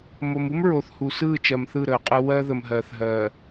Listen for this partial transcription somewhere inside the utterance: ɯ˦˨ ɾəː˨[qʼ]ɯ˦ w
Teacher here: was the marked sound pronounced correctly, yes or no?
yes